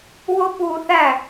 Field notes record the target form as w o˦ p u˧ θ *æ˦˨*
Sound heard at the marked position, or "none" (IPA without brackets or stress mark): æ˦˨